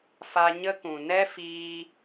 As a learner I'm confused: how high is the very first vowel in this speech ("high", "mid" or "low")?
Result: low